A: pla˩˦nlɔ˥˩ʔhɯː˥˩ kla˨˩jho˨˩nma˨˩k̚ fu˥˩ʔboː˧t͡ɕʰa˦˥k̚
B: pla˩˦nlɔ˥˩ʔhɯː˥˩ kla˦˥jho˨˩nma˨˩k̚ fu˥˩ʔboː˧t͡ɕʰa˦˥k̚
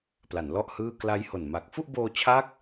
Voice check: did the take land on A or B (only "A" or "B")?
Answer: B